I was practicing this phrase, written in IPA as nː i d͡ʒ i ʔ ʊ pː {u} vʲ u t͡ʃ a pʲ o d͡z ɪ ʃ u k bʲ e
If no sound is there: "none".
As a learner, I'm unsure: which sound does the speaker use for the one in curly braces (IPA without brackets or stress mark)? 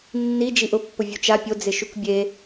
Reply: ʊ